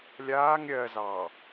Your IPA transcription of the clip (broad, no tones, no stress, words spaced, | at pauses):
lʲaːŋ ɾʲɜzɑ